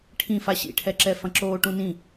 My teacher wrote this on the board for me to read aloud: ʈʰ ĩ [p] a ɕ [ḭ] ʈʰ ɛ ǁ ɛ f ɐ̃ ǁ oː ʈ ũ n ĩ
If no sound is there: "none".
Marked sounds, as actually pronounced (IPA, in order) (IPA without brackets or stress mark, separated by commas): f, ḭ